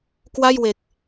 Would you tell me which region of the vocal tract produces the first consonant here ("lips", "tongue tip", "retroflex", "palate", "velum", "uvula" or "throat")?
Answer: velum